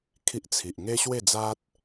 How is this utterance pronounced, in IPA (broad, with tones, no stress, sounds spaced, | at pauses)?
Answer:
kʰ i˦ ʔ t͡sʰ i˨ ʔ ŋ e˦ ɕ w e˥˧ d͡z a˦ t̚